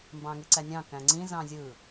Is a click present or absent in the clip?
present